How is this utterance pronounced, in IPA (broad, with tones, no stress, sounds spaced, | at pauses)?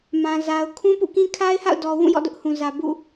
m ã˨ z a˨ ʊ̯ kʰ ũ˦ p ṵ˦˨ k ĩ˦ kʰ a˦ ɪ̯ h a̰˦˨ ʊ̯ d ɔ˨ w ũ˦˨ j ɔ̰˦˨ d ʊ˦ ʔ h ũ˨ z ä˨ b ṵ˦˨